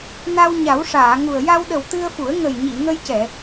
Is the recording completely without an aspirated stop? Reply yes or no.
yes